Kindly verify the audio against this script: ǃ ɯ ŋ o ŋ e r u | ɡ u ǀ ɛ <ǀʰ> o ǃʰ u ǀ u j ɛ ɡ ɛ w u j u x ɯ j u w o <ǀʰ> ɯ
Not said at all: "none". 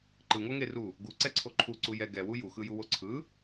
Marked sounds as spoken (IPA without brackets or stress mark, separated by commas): ǀʰ, ǀʰ